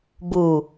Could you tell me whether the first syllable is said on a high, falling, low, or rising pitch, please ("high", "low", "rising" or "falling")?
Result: low